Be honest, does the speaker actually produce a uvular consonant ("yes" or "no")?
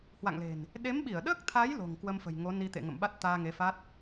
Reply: no